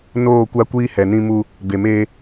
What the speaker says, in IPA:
n oː˦˨ kʷ a˦ kʷ iː˦ h ɛ˨ n ĩ˦ m u˦ | b e˨ m eː˦

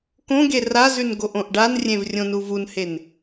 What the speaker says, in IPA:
k õ ɡ e r a z ʉ n ɡ o ʔ õ ʔ ɖ a n rʲ ẽ v rʲ õ n u v u n h e n

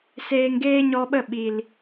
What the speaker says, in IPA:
s eː˧ ŋ ɡ eː˦ ɲ ɔ˧ ɓ ə˦˨ ɓ i˨ l

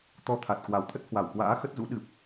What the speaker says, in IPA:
t̪ ɔ˨˦ t̪ʰ a˨˩ t̚ k w a˨˩ w t̪ʰ ə˦˥ t̚ h w a˧˩ w k w a̰ː˧˥ x ə˦˥ t̚ z ṵ˧˥ ɗ ɨ˨˩ p̚

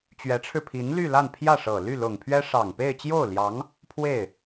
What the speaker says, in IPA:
t͡ɕ ɥ ɛ˧˥ ʈ͡ʂʰ ɻ̩˧ pʰ i˧˥ n l y˥˧ l a˥˧ n pʰ j ä˥˩ ʂ ɤ˨˩ l y˥˩ l ʊ˨˩ ŋ pʰ ɥ ɛ˥ ʂ ɑ˨˩ ŋ p e˥˧ ɪ̯ t͡ɕ j o˥˩ ʊ̯ l j ɑ˧˥ ŋ | pʰ w e˥˩ ɪ̯

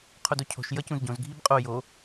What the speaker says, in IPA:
qʰ o d o cʰ o̤ ʃ j ʌ c ũ z ɟ õ z ɡʱ i b qʼ o j o

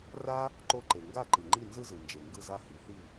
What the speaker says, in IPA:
r a˥ | ǃ o˥˩ ǃ e˩ ŋ ɡ a˥˩ ǃ ɯ˩ ŋ͡ǃ i˥˩ n z ɯ˥ z ɯ˩ n d͡ʒ e˩ ŋ ɡ ɯ˥˩ z a˥˩ h i˩ θ i˥˩

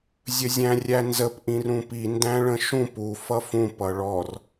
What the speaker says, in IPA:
zʲ ə zʲ æ̃ rʲ æ n z ə p ʔ ĩ r ũ p i n d æ̃ ɭ ə̃ ʃ ũ p u f ʌ f ũ p ʌ ɭ ɔ r

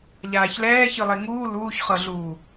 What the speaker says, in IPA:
ʎ aː ç l ɛː ç ɯ lˠ e ŋ uː l uː ç χ ɤ ɮ uː

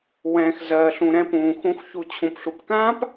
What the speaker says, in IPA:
w ɛ̃ː˨ x z ɜː˨ ɬ ũ˨ ɾ ɛ̃˧ p ũː˨ x ũ˨˦ x ç u˨ t͡ɕʰ ũ˨ p ɬ u˨ p k ãː˦ p

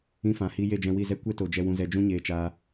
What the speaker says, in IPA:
ĩ˧ f ã˨ h i˧ j e˦˨ d͡ʒ ɛ̃˧ w i˦˨ z ɛ˦ kʷ ɛ˦ t o˨ d͡ʒ ɛ˧ w ũ˧ z ɛ˧ d͡ʒ ũ˦ ɲ eː˧ t͡ʃ aː˧

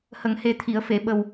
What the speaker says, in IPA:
h ə˨˩˨ ŋ h e˨˩ t̪ʰ i˨˩˨ ə̯ f e˨˩˨ ɓ ə˨˩ w

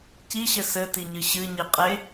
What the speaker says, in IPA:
c i ɕ ɘ s ɘ t i ɲ ɨ ɕ ɨ ɲ i qʼ e

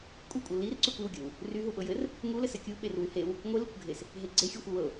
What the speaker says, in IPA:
kʷʼ ɪ kʷʼ ɤ l i r ǀ y kʷ i w ɡʲ ɤ w | r y ɦ u ɓ ɤ j ɘ r | ŋ u l ɘ s ɘ kʲ u ɓ e r w y h e w | ŋʷ ɘ l i kʷ ɡʱ e s | ɦ e ɡ͡ǀ e xʲ u xʷ ɪ w ɤ

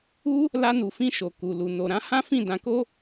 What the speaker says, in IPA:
u˦ | l a˧ n u˨ f ĩ˧ ʃ o˨ k u˨ l u˨ n o˨ ɾ ã˨˦ h ã˦ f ĩ˦˨ d ã˧ k o˦

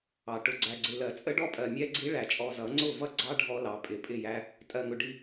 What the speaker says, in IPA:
ɑ˨ ʈ ʊ˨ ɡ͡ǀ æ˨ ɡ͡ǀ ɪ˨ l ɜ˨ t͡sʼ ə˦ ɖ ɔ˦ pʼ ɜ˨ mʲ ɛ˦ ɡ͡ǀ i˦ ɭ æ˨ t͡ʃʼ ɔ˨ z ʌ˨˦ ŋ͡ǀ ʊ˦˨ v ʌ˦ ɡ͡ǀ ɑ˦ ɖʱ ɔ˦ l ɑ˨ pʼ ɪ˨ pʼ ɪ˦˨ j æ˦ | tʼ ɜ˨ ŋ ʊ˨ ɖ i˨

